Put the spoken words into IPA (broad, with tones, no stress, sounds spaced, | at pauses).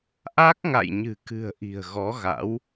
ʔ a˦˥ k̚ ŋ a̰˧˨ j ɲ ɨ̤˨˩ k ɨ̤˨˩ ə̯ ʔ i̤˨˩ ə̯ ɣ ɔ˨˦ ɣ a̰˧˥ w